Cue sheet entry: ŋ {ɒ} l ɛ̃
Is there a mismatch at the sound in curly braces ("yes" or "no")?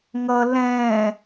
yes